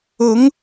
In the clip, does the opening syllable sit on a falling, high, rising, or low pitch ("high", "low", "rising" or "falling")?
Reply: rising